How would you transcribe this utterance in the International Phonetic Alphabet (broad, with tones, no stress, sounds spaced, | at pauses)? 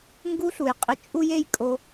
ŋ ɡ u˥ ɬ u˩ j qʼ ɪ˧ t͡ʃʼ u˥ j e˥ j kʼ o˧